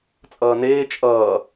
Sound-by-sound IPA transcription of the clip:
t͡sʼ ʌː n eː t͡ʃʼ ʌː

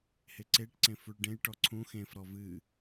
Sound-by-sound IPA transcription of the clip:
h e ǀ e ʈ ǀ ẽ f u ɭ ɖ ẽ j ʈ ɔ ǀʰ ũ x ẽ f ɾ ɔ v ɨ

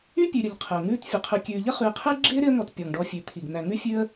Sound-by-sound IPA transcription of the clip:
y˥ pʲ ʉ˨ ɾʲ ə˨ ʎ qʰ ə˩ ʊ̯ ŋ ʉː˥ t fʲ ə˩ qʰ ʉ˨ kʲ ʉː˨ ʎ ə˥ χ ʉ˨ ɪ̯ qʰ ɪː˥ ɡ͡ǁ ɪː˥ ɾ ɪ˦ ə̯ ŋ ɔ˨ t pʲ ɔ˩ ŋ ɖ ɔ˨ fʲ ʉ˩ t̪ʰ i˩ ɡ n̪ æ˨ ŋ ʉ˥ fʲ ʉ˦ ə̯

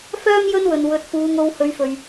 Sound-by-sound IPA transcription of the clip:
f œː˧ m j ɵ˥ n w ɵ˨˩ n w ɵ˨˥ t̚ f uː˨˧ ŋ o˧ w h ɵ˨˥ ɥ f ɵ˨˩ ɥ

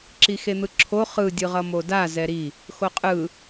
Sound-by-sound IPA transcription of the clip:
ǁ i x e n̪ ɯ ǁʰ o χ ɯ dʲ ɯ ʁ ʌ m o d a z ɛ ɾ i | x o qʼ ɯ

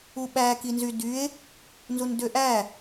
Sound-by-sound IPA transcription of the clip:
u ɓ æ k i n z y d y e̯ | n z u n d ø ʔ æ

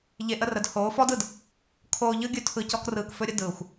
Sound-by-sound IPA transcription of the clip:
ʎ e˧ ʔ ə˦ r ə˨˦ d h oː˨˦ f ɔ˦ d ɯ˨ d | kʰ oː˧ ʎ ɯ˦ ɡʲ ɵ˦ tʰ ɯ˧ c ɔ˦ k r ɯː˧ k f ɵ˦ ɾʲ ə˦ d ɯː˨ xʷ

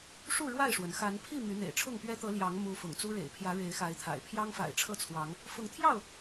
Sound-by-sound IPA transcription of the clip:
ʂ u˥˨ ɻ w a˥˨ ɪ̯ ʂ w ə˩ n x a˨˦ n pʰ i˥˨ m y˨˦ n̪ ḛ˨˩ ɪ̯ ʈ͡ʂʰ ʊ˥˨ ŋ p ɥ ɛ˦ t̪ ɤ˨˦ l j ɑ˨˦ ŋ m u˦ f ʊ̰˨˩ ŋ t͡s u˦ ɻ ḛ˨˩ ɪ̯ pʰ j ä˨˦ ɻ e˨˦ ɪ̯ x a˨˦ ɪ̯ t̪ʰ a̰˨˩ ɪ̯ pʰ j ɑ˦ ŋ f a̰˨˩ ɪ̯ ʈ͡ʂʰ ɤ˥˨ t͡sʰ w ɑ˨˦ ŋ | f ʊ˨˦ ŋ t̪ʰ j ɑ˥˨ ʊ̯

